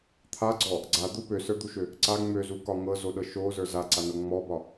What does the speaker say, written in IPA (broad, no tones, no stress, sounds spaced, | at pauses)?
t̪ʰ a ɡ͡ǀ ɔ | ɡ͡ǀ a d̪ u p ø s ə˞ d̪ u ʃ ø | ǀ a ŋ͡m ø z u k ɒ ŋ ɤ z o ɗ ɤ ʃ o z ə˞ z a ǀ a n ɤ ŋ͡m ɔ b ɒ